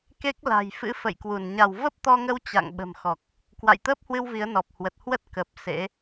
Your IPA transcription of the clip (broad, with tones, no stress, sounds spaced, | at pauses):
k e˦˥ k̚ l a̤˨˩ j f ɨ̰˧˥ f ə̰˧˨ j k w u˧˩ n ɲ a˧˩ w v ə˦˥ p̚ t̪ ɔ˧ ŋ ə˧ w t͡ɕ a̰˧˨ ŋ ɓ ə̤˨˩ m x ɔ˨˩ k̚ | k w a̰˧˨ j t̪ əː˦˥ p̚ h w ɨ˧ w v i˨˦ ə̯ n ɔ˨˩ p̚ h w ə˨˩ t̚ h w ə˦˥ t̚ k ə˨˩ p̚ s ḛ˧˥